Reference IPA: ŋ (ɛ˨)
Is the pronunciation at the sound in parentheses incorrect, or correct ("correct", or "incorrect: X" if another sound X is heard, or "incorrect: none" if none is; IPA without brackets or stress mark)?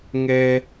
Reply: incorrect: ɛ˦